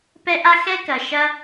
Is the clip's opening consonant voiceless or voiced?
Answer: voiceless